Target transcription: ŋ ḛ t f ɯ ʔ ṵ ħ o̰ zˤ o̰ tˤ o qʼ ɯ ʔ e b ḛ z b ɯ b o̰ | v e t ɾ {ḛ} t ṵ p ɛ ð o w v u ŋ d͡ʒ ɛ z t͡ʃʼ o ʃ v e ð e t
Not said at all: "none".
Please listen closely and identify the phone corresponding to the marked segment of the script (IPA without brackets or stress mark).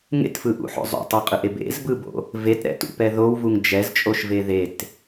ɛ̰